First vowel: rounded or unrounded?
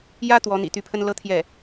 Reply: unrounded